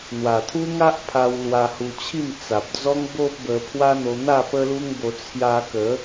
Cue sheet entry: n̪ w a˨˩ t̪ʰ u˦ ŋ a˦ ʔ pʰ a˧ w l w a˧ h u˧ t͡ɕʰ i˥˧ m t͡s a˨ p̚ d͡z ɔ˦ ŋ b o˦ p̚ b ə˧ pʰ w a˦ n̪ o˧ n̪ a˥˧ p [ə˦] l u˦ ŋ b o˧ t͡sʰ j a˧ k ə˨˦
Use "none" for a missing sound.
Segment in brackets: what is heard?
ə˦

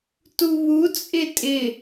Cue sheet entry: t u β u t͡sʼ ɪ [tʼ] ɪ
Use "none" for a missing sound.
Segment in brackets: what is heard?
tʼ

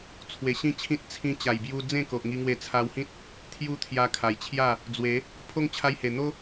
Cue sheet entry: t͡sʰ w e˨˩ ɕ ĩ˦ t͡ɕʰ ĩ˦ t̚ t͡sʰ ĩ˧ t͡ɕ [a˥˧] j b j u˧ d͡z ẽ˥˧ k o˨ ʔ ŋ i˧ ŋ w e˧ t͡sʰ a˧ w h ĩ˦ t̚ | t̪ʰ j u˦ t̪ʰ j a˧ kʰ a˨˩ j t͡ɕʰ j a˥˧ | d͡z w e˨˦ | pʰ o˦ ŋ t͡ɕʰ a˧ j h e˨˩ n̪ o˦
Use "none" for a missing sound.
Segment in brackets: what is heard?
a˨˩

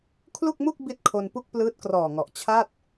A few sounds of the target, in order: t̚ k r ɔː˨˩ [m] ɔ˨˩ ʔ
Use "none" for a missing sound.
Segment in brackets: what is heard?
ŋ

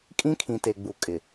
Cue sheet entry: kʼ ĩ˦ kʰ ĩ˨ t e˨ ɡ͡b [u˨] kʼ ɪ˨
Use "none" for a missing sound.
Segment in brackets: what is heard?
u˨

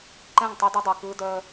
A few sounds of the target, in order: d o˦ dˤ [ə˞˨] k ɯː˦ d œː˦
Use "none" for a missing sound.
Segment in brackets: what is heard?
ə˞˨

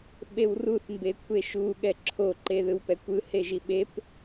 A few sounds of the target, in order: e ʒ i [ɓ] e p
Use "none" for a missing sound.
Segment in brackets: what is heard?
ɓ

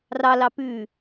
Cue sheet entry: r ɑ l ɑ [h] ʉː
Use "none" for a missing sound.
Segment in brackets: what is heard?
p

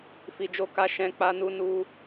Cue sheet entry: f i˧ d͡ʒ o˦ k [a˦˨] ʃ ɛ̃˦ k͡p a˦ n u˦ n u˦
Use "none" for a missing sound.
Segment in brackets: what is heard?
a˦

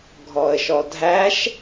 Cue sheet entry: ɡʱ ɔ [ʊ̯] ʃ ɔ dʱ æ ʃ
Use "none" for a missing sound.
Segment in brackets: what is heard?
ə̯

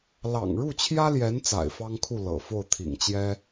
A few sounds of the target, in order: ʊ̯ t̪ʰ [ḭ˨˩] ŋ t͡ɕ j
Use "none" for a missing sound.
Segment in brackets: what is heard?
ḭ˨˩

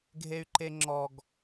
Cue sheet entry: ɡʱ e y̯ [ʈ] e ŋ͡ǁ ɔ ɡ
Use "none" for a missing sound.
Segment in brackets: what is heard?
ǃ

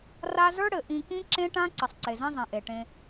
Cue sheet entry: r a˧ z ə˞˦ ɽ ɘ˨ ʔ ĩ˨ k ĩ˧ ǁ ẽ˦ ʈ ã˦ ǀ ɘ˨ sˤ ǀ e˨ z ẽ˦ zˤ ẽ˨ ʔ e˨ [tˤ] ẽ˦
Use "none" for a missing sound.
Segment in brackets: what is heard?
ʈ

